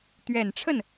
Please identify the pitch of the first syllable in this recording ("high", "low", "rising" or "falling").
low